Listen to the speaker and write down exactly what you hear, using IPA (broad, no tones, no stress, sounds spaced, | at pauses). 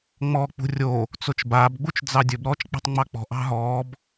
ŋ͡m ɔː k͡p ṳ rʲ o | t͡s o t͡ʃ b aː b ɡ͡b u t͡ʃ d͡z ɑ dʲ ɵ b ɾ ɔː t͡ʃ k͡p ɑ̤ tˤ ŋ͡m ɑ k͡p ɔ̤ ʔ ɑ̤ ɦ ɔː b